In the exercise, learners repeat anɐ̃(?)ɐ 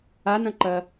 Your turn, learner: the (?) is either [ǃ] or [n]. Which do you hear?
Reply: ǃ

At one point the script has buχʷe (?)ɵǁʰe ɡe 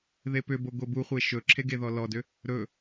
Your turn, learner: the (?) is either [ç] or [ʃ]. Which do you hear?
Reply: ʃ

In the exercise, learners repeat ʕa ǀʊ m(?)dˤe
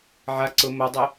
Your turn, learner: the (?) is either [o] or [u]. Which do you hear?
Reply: o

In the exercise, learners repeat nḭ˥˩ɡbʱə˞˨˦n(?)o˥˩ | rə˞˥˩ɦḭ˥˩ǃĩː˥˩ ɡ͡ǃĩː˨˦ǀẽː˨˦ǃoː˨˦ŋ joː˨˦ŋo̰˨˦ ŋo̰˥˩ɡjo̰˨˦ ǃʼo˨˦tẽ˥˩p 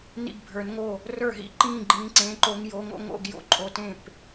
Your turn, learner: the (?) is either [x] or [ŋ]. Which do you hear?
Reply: ŋ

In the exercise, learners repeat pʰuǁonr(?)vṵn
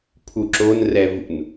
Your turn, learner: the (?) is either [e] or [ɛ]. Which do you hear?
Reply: ɛ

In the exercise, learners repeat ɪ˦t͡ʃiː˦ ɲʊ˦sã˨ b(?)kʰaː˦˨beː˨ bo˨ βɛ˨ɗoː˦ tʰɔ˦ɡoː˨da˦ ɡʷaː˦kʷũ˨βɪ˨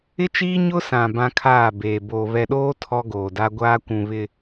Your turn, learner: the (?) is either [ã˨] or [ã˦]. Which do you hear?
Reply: ã˦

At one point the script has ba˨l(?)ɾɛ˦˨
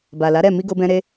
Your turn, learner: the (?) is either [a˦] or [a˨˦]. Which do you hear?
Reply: a˨˦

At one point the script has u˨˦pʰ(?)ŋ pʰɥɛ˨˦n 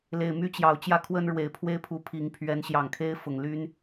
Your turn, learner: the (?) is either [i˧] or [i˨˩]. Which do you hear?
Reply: i˨˩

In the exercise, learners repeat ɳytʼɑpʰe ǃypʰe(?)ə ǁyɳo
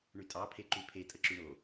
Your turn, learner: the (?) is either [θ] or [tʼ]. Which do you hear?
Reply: tʼ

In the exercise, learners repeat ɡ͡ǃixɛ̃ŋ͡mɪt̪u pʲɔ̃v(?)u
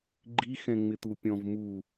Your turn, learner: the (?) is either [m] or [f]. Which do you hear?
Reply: m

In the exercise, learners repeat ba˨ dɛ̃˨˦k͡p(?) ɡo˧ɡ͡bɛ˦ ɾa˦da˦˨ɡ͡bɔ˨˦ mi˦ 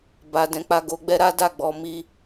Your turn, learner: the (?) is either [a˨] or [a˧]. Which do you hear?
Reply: a˧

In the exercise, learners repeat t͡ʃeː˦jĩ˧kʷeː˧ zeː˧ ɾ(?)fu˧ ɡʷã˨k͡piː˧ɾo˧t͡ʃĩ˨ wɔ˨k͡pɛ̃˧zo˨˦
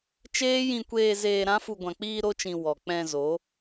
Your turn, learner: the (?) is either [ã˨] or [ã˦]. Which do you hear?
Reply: ã˦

